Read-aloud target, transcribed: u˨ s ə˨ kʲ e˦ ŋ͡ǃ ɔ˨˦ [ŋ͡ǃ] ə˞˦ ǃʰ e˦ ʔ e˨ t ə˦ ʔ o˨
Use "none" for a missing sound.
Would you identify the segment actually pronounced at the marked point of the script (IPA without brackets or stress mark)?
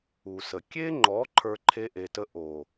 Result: ǃʰ